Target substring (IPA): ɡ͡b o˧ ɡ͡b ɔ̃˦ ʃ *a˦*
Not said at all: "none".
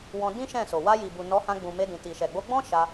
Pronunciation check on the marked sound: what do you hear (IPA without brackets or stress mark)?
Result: a˧